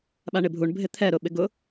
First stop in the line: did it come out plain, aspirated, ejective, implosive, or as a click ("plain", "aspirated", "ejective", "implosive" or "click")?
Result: implosive